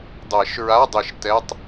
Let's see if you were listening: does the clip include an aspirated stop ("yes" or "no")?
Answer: no